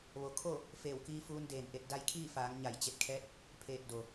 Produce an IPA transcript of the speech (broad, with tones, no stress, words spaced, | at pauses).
ʋo˩˧kʰo˥˨ | feː˧˩wkiː˧fuː˧n deː˧˩nʔe˧t̚ da˧jkʰiː˥˨faː˩˧ŋ ɲa˧˩jt͡ɕe˧t̚kʰɛː˧˥t̚ | pʰeː˧˩t̚do˩